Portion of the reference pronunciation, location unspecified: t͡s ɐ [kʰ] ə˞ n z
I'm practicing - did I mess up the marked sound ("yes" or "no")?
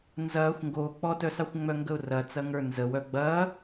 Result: yes